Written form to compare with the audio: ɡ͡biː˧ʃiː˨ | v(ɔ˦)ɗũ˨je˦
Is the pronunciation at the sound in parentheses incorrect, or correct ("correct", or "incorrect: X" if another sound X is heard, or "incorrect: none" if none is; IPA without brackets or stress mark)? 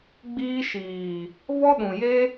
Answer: correct